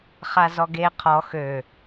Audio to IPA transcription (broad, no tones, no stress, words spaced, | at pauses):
χazɔɡe qʰɔ xø